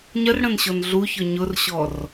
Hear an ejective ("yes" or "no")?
no